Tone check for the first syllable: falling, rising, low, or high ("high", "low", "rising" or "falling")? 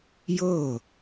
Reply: falling